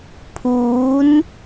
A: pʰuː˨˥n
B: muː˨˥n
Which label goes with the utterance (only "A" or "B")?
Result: A